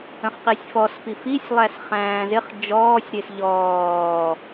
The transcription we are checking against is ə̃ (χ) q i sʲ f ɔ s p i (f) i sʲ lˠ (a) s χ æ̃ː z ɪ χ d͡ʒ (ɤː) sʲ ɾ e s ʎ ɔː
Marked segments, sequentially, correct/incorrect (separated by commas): correct, correct, incorrect, incorrect